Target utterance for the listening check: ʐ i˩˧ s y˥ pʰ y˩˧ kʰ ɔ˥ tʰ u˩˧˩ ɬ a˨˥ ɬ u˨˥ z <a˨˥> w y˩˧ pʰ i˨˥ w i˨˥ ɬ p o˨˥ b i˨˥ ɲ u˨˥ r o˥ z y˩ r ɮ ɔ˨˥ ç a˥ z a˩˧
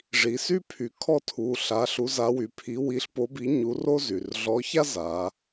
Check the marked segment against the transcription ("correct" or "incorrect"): correct